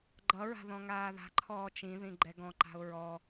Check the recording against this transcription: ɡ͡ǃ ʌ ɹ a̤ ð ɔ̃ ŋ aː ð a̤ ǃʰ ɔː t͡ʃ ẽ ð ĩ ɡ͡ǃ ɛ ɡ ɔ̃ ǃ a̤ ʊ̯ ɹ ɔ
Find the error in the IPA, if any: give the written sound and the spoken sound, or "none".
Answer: ẽ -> ĩ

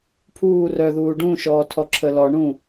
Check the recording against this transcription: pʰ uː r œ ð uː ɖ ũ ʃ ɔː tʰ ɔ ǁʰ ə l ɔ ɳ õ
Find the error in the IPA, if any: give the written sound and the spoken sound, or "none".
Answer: õ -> ũ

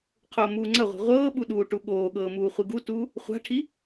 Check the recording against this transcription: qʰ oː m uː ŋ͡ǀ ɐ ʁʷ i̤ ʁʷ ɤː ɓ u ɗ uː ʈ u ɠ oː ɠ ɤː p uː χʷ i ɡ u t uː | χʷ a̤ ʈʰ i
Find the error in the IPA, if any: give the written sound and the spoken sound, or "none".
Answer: p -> m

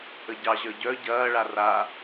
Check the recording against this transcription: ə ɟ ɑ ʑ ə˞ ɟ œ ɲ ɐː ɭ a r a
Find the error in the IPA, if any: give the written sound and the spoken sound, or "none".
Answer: ɲ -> ɟ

